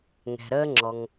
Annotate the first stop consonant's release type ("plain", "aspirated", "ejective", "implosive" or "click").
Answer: click